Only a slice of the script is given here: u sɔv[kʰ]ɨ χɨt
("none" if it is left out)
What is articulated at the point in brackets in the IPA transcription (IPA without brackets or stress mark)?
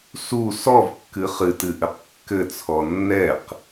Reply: kː